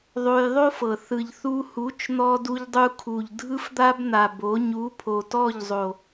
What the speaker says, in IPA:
ðˤ o˧ j ðˤ o˦ f ɤ˨ θ ɯ˨ ʎ θ u˧ h u˨˦ t͡ʃ n̪ ɔ˧ d u˧ ʎ dˤ u˧ kʰ u˨ ʎ dʱ ɯ˦ f d̪ a˦ b n̪ a˨ b o˨˦ ɲ u˨˦ pʰ o˨ t ɔ˦˨ ʎ zˤ o˨

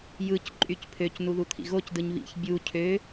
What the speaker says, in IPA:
j ɯ c ǃʼ y c pʰ ø c n u ð u t̪ʰ ḭ ɣ o c d ɯ ɲ β ḭ ç bʲ u cʰ ø

